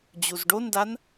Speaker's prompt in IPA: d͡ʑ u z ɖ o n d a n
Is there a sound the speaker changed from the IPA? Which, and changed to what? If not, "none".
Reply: none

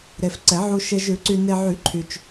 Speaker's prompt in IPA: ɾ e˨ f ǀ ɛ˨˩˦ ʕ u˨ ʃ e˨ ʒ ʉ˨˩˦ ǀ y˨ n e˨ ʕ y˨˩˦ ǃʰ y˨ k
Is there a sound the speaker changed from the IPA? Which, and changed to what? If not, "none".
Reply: k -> t͡ʃ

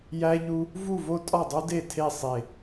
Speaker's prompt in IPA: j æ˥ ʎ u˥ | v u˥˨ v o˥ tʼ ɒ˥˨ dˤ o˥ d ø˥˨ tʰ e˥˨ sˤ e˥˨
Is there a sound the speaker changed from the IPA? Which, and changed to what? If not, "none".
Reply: ø˥˨ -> e˥˨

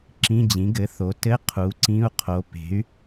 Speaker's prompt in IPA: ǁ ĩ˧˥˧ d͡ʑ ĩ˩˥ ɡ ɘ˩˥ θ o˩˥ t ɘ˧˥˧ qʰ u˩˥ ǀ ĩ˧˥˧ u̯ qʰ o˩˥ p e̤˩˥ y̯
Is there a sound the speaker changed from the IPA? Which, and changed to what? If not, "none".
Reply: none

